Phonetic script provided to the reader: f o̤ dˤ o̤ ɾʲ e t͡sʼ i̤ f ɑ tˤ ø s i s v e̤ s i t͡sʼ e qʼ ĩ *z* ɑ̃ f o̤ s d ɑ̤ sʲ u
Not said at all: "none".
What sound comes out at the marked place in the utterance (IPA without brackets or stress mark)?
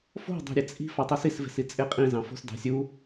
z